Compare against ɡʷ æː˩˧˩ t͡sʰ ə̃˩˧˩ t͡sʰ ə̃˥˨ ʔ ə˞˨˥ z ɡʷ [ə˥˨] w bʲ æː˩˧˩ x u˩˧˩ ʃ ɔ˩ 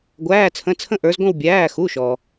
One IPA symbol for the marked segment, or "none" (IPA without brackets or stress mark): ə̃˥˨